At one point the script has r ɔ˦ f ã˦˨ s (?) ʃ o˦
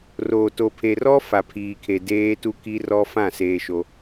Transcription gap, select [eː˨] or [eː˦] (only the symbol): eː˦